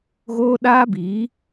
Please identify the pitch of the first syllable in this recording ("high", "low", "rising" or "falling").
high